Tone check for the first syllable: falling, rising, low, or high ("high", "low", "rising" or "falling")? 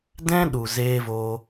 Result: high